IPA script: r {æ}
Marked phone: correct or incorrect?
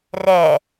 incorrect